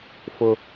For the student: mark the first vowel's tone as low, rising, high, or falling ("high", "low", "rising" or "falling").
low